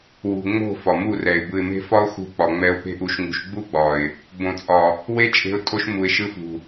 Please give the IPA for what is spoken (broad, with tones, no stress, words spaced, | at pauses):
wṳ˨ŋ͡mo̤˦˨ fɒ˨mu˦˨rɛ˨ɪ̯ bɯ˨ɪ̯me̤˧ fɒ˦ʊ̯xṳ˧k͡pɒ˨ ŋ͡mɛ˧ʊ̯pe̤˦ʔu˧ʃŋṳ˧ʃ ɡ͡bu˦ ɡ͡bɒ˨ɪ̯ | bõ˨t͡sʼɒ˨ | we˦t͡ʃʼe̤˧ʊ̯ tʼo˧ʃ mu˨ɪ̯ʃɯ˧fṳ˨